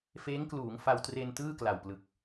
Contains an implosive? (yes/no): no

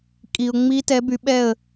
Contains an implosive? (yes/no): yes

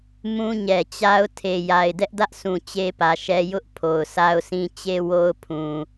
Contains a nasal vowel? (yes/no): yes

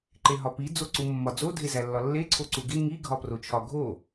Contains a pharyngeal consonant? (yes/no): no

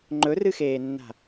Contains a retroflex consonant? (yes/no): no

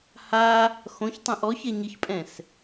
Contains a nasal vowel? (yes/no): yes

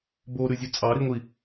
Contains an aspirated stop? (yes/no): no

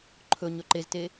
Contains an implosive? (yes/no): no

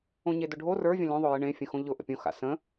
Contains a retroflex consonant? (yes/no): yes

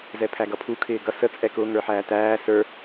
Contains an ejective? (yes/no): yes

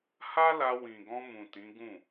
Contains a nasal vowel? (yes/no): yes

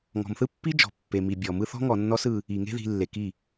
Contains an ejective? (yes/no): no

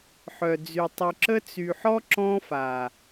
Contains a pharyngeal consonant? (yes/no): yes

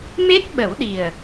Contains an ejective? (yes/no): no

